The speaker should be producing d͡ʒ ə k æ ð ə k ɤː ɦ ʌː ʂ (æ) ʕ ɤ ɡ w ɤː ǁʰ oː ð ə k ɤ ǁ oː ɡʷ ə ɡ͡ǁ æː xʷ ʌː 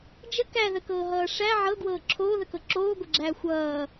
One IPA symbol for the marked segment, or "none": æ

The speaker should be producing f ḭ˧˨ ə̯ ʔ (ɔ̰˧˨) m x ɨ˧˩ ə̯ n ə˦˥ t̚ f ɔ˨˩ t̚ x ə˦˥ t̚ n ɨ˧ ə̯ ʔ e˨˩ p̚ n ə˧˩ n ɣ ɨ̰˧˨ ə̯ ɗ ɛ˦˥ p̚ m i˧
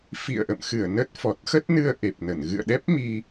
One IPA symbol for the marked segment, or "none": ə̰˧˨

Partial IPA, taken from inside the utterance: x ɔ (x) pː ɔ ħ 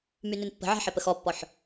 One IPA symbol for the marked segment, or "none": none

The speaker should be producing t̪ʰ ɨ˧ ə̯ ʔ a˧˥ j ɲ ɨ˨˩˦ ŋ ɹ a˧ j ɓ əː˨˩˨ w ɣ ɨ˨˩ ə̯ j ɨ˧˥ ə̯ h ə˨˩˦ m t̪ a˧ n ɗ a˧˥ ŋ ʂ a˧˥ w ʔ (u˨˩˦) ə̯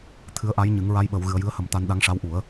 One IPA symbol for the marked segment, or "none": u˨˩˦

